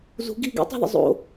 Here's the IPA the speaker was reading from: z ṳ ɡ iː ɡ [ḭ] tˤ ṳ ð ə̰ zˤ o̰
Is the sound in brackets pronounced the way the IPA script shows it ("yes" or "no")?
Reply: yes